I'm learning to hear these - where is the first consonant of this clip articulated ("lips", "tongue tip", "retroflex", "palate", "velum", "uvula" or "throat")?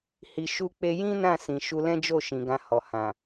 throat